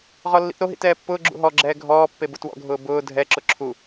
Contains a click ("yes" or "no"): yes